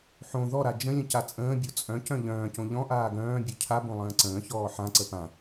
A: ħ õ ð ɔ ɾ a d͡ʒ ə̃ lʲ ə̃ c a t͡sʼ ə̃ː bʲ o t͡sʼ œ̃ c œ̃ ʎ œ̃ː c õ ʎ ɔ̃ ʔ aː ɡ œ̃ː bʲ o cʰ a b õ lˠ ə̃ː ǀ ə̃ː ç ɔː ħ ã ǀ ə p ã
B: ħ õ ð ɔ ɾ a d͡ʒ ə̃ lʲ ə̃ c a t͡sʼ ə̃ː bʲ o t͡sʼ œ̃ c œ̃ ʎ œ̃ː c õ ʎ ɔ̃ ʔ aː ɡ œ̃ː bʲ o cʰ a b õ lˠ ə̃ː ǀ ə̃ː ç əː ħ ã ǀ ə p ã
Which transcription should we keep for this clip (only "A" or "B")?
A